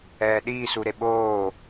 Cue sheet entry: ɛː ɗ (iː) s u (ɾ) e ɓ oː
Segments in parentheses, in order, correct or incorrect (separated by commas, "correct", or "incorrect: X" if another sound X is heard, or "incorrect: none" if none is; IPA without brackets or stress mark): correct, correct